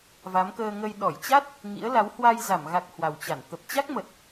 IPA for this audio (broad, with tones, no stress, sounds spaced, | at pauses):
v a˨˦ m k əː˧ ŋ ə˧ j ɗ ɔ˧˩ j t͡ɕ a˦˥ t̚ | ŋ ḭ˧˥ ə̯ l a˨˦ w h w a˧ j z a˧˩ m ɣ a˨˩ k̚ h w a˨˩ w t͡ɕ a˧˩ n t̪ ə˨˩ p̚ t͡ɕ a˦˥ k̚ m ə˨˩ t̚